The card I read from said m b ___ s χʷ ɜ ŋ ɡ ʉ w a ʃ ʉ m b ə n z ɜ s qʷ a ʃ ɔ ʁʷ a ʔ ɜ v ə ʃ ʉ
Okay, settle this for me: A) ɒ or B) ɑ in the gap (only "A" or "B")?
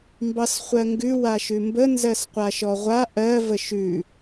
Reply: B